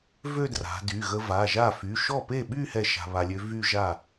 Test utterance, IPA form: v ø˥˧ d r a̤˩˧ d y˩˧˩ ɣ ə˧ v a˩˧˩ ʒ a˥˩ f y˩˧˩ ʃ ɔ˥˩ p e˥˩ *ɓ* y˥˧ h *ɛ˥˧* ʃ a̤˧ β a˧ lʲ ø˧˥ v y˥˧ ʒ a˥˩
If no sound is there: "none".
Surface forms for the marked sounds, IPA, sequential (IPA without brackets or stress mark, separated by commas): ɓ, ɛ˥˧